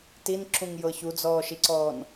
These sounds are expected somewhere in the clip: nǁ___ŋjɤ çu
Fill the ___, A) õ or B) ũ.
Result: B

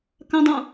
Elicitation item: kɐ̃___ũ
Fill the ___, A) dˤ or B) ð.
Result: A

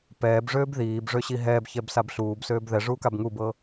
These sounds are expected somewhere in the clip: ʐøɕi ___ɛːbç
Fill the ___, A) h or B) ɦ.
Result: B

